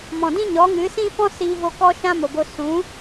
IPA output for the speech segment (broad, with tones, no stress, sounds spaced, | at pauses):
m ɔ̃˨ d ĩ˦ ɲ ɔ˨˦ ŋ ɨ˨˦ s ĩ˦ f ɔ̃˦ s iː˧ v o˧ k ɔ˦ ʃ ã˦ m o˨ b o˧ s ũ˨˦